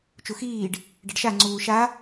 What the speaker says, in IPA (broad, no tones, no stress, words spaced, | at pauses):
t͡ʃuxiːɖ | ɖɐɖʃa ŋ͡ǀuːʃa